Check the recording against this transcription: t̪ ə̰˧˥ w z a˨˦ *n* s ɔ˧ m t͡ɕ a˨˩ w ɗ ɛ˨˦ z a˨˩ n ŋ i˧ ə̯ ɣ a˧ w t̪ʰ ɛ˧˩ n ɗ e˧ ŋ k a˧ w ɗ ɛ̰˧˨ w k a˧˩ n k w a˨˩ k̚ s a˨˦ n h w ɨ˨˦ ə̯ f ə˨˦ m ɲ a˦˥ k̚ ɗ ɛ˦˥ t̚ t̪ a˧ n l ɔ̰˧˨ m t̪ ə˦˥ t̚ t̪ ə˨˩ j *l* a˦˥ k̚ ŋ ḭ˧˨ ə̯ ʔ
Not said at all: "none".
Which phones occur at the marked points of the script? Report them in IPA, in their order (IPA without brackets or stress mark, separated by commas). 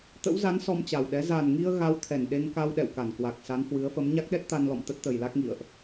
n, l